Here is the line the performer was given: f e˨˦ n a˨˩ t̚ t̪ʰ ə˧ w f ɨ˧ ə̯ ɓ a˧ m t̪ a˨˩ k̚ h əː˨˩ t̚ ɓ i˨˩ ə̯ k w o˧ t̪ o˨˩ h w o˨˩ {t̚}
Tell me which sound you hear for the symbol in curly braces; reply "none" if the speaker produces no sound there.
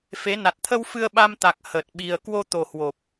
p̚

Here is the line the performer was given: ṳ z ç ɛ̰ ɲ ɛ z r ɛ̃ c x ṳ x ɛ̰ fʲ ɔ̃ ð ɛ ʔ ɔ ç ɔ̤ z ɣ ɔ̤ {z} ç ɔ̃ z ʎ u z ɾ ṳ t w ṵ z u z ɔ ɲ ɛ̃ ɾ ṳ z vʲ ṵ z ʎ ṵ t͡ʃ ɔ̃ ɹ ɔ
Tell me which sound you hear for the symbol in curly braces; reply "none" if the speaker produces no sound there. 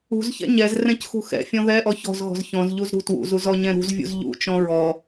z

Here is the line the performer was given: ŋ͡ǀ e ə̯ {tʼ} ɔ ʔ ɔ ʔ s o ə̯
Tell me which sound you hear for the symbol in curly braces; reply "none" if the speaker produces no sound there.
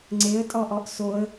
tʼ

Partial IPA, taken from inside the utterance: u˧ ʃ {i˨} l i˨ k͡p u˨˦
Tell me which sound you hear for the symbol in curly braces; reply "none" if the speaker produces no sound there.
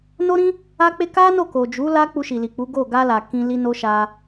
i˨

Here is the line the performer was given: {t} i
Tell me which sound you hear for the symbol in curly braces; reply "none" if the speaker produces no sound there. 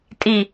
tʼ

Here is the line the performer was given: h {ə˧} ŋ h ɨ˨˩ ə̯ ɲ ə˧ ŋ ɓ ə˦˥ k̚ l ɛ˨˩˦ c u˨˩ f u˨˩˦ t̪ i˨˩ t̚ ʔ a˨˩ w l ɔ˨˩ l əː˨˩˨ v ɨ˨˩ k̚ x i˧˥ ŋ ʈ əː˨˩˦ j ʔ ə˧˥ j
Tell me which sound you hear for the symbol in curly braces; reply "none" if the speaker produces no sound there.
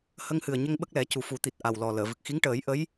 ə˧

